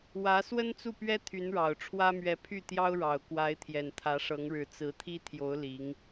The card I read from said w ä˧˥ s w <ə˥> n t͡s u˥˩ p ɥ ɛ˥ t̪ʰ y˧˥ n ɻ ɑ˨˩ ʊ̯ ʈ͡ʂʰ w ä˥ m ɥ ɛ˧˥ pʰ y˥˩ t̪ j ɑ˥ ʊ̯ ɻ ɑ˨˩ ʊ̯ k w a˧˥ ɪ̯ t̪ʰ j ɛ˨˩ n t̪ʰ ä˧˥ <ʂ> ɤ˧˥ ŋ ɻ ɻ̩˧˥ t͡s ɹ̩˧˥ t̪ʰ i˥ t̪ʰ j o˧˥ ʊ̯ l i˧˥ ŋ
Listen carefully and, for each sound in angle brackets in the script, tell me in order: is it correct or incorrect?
correct, correct

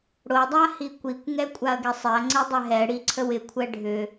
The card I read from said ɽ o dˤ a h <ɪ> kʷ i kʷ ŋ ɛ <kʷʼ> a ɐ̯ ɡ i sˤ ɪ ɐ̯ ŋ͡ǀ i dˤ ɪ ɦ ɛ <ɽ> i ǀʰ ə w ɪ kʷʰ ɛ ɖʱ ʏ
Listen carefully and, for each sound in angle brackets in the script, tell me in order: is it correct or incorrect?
incorrect: i, correct, correct

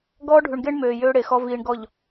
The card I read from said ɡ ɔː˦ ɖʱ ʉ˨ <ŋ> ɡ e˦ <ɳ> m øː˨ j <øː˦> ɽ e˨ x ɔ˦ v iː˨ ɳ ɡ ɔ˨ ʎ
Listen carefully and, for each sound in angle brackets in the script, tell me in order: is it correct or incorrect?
incorrect: ɳ, correct, correct

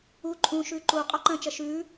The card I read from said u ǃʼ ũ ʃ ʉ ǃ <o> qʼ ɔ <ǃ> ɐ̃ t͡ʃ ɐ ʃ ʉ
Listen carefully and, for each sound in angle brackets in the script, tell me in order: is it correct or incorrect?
incorrect: u, correct

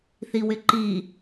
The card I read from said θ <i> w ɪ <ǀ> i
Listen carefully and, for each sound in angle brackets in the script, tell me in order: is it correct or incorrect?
correct, incorrect: ǃ

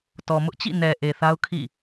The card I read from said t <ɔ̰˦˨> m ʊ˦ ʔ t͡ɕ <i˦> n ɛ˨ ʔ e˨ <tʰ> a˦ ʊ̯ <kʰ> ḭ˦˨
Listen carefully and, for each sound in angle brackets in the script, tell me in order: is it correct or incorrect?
incorrect: ɔ˨, incorrect: ḭ˦˨, incorrect: θ, correct

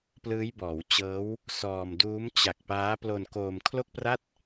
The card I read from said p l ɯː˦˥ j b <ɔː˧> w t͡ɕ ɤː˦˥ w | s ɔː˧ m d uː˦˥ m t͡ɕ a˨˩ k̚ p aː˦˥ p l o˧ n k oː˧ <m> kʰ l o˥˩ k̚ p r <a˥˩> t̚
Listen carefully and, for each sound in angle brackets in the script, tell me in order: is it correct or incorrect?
incorrect: ɔː˩˦, correct, correct

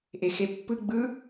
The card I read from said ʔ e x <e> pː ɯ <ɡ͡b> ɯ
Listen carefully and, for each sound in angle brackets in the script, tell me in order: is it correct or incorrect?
correct, correct

